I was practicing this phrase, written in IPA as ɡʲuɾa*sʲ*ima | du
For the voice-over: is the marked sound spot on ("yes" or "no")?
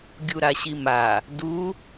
no